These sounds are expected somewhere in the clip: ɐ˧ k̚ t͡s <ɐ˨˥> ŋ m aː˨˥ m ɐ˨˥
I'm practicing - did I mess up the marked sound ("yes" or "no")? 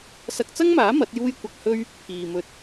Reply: yes